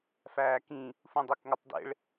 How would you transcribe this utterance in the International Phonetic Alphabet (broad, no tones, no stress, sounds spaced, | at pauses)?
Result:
f æː k ĩ | f ũ dˤ i k ŋ o tˤ d ḛ ɭ